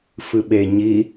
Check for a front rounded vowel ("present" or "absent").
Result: absent